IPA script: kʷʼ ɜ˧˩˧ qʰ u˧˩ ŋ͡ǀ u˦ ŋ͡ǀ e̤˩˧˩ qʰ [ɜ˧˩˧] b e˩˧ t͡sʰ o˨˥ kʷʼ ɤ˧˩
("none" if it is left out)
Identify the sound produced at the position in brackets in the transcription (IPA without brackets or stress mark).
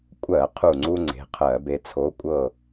ɜ˧˩˧